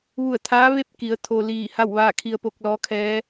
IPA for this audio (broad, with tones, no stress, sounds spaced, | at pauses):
ʋ u˧˩ ə̯ t̪ʰ aː˧˥ ʋ e˥˨ p̚ k i˩˧ ə̯ t̪ʰ o˧ l iː˧˩ h a˥˨ w ʋ aː˥˨ kʰ i˧ ə̯ p o˧ k̚ l ɔː˧˥ kʰ ɛː˧˥